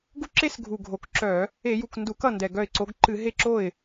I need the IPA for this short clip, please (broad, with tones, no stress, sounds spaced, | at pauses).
ɡ u˦ ǁ e˦ s ɡʱ u˨˩ ɡʱ o˨˩ k ǁ œ˧˩˧ | e˧˩˧ j u˨˩ k n d u˧˩˧ k ʌ˥˩ n d ɛ˨˩ ɡ œ˥˩ ɪ̯ ǀ o˨˦ ɡ ǃ ɨ˧˩˧ ɦ e˥˩ ǁ o˥˩ ɪ̯